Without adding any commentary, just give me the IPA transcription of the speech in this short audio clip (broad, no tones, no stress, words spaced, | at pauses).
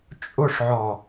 t͡ʃʼʊʂʕɔ